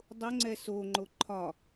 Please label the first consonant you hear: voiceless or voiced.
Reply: voiced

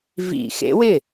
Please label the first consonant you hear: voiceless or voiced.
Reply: voiced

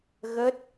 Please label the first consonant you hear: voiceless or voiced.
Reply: voiced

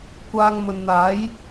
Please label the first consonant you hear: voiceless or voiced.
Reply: voiceless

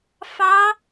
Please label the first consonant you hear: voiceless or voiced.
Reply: voiceless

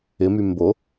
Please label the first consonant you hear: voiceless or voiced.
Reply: voiced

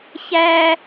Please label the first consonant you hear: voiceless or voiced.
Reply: voiceless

